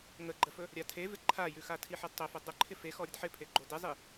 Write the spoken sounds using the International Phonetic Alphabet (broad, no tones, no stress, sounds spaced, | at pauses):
ŋ ə ɡ͡ǃ ə f ɵ | ɾʲ a tʰ e v ɪ ǃʰ a j ʉ x a tʰ i ħ e d tˤ ɵ f ɵ dˤ ə ǃʰ ɪ f e x ɔ ɾʲ ə d ħ ɪ pʰ e ɡ͡ǃ o d ɪ zˤ i